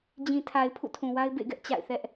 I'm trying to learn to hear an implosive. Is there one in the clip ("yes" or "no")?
no